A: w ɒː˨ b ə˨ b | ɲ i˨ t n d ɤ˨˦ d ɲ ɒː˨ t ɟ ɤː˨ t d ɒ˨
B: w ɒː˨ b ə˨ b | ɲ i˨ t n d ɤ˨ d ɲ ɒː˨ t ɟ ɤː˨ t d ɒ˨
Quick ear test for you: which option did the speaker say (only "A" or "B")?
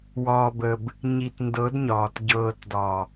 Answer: A